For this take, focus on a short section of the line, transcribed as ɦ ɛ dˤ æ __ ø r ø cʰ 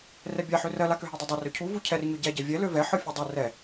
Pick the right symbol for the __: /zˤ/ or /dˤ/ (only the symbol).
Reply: dˤ